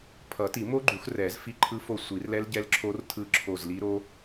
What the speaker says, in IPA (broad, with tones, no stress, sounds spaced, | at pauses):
pʰ ʌ˨˩˦ t i˨˩˦ m o˦˥ ɡ͡ǃ u˨˩˦ x r ɛ˨˩˦ z f i˦˨ ǃʰ ɯ˦˥ f o˦˨ sʷ i˨˩˦ r l ɛ˦˥ l ɟ ɛ˦˥ l ǁʰ o˦˥ r tʰ ɯ˦˨ ǁʰ o˦˨ z l i˦˥ ɾ o˦˥